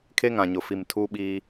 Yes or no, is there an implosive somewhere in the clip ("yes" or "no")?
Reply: yes